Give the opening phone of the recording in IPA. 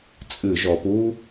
t͡sʼ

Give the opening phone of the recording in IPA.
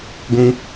ɡʷ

